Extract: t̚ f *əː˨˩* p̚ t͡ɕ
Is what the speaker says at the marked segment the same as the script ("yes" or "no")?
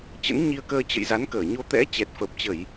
no